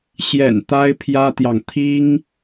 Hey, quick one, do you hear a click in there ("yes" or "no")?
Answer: no